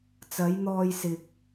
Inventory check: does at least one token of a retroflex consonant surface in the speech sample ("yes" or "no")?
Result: no